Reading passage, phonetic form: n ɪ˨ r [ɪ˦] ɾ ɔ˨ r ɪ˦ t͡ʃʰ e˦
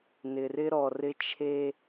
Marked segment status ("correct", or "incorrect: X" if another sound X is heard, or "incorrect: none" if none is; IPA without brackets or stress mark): correct